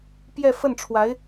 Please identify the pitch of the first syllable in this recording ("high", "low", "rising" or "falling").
falling